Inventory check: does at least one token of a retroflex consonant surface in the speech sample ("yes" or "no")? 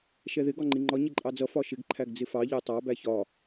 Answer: no